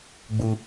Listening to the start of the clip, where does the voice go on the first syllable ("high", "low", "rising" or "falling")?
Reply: low